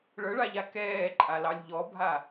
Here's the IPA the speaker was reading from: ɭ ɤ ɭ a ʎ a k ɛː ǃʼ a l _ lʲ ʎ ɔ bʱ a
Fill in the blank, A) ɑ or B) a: A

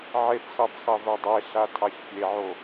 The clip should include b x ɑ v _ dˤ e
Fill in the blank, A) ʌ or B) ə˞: B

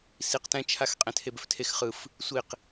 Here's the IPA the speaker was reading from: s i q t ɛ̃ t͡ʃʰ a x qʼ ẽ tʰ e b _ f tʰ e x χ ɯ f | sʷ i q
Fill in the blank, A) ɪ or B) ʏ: B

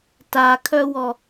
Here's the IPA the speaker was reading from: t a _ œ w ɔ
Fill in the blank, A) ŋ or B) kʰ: B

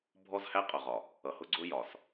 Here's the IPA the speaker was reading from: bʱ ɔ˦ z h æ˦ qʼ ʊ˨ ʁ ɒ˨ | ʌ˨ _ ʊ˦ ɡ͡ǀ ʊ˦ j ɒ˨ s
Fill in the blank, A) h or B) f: A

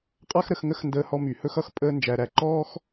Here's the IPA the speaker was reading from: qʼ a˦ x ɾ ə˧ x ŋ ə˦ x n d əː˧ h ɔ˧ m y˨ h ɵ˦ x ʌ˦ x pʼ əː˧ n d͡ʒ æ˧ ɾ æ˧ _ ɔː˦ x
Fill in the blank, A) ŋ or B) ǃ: B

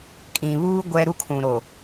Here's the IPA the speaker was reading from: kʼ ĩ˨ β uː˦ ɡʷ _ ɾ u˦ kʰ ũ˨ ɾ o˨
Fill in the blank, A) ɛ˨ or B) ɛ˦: B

